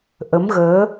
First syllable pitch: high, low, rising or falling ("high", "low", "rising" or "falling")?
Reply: rising